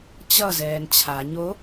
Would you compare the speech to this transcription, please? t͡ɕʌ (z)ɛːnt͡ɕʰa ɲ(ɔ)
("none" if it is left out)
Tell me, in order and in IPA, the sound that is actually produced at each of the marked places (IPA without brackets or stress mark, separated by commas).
z, o